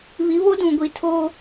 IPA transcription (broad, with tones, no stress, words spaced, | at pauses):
βi˨˦βo˦dũ˨ ɡʷi˨tʰo˦